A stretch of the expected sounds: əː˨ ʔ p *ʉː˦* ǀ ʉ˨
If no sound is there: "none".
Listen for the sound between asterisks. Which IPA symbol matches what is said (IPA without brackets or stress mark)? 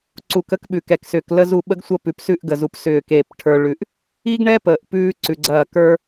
ʉː˦